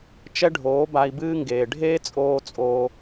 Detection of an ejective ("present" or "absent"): present